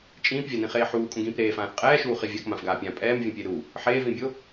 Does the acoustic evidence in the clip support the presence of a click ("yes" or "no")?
no